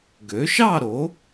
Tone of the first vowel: rising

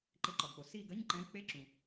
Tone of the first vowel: rising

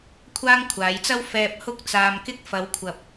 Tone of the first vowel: high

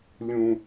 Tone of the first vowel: high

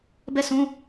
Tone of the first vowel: falling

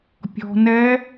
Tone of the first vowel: low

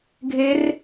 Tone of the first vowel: rising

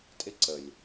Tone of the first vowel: high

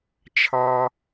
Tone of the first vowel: high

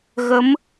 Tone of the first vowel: rising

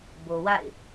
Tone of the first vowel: low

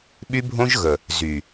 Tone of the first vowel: high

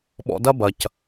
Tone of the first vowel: low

